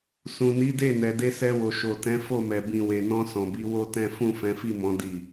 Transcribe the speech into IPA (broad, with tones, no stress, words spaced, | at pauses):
sũ˨ni˨˦de˦˨ nɛ˨de˧ sɛ˧wo˨ ʃo˨tɛ̃˨˦ fo˦˨mɛ˨ bĩ˨we˨nɔ̃˧ sɔ̃˨bi˨˦ wo˦tɛ̃˦ fũ˦˨fɛ̃˨˦fi˦˨mɔ̃˨˦ di˦˨